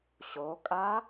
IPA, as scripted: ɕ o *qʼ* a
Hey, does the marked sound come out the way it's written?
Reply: no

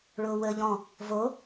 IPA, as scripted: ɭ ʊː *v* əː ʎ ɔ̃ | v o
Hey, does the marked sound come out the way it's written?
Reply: no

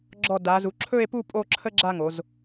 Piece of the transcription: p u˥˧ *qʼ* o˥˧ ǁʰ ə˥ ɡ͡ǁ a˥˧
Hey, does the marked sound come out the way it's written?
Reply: no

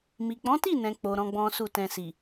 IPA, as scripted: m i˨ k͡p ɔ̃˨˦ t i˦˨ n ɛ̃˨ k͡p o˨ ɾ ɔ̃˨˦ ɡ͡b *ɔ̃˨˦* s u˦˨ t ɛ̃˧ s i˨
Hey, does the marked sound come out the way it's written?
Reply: no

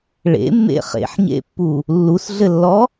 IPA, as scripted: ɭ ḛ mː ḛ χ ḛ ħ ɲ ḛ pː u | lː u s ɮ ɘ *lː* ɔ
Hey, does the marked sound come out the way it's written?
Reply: yes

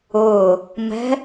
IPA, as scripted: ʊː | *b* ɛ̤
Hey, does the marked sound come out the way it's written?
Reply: no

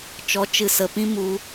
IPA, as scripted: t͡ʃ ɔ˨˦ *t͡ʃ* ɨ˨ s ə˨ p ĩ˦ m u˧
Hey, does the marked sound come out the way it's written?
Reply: yes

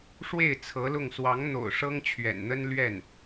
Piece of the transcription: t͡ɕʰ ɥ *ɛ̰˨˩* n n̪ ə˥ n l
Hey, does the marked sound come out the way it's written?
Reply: yes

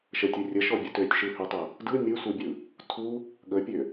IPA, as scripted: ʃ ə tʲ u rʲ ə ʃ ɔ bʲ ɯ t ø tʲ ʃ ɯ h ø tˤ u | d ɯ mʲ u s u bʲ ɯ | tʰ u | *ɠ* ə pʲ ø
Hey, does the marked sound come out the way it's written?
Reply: yes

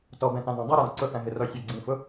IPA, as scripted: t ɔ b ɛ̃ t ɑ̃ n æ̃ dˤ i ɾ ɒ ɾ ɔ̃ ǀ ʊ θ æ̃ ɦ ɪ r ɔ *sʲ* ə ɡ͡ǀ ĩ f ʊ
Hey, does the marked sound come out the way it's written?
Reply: yes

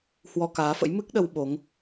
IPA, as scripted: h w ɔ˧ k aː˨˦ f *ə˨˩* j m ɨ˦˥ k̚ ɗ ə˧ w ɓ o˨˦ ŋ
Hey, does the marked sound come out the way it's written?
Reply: no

